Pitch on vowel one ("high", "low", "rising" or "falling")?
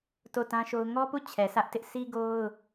falling